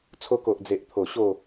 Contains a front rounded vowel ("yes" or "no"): no